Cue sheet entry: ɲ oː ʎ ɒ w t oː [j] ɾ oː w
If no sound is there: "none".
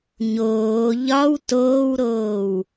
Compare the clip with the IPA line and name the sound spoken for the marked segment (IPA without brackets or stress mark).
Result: w